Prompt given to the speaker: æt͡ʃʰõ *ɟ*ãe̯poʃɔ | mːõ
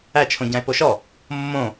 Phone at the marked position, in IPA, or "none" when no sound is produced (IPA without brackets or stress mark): ɟ